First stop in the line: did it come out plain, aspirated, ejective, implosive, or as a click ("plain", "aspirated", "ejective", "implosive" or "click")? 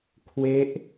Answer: aspirated